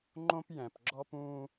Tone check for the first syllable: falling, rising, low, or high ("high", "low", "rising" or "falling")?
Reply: high